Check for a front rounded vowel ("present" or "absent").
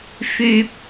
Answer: present